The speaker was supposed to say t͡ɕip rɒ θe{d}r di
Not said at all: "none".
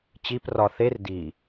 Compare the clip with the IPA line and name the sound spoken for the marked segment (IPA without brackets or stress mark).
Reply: none